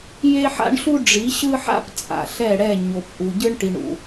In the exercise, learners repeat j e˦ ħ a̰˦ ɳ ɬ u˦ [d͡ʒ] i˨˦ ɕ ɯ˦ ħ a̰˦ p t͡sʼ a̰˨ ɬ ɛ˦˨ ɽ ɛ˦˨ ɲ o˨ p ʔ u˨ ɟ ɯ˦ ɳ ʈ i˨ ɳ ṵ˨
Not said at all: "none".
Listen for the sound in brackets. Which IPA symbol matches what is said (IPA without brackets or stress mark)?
ɖ͡ʐ